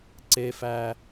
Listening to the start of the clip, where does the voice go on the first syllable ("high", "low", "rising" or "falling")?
low